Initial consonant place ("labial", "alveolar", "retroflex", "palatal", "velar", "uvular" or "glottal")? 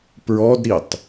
labial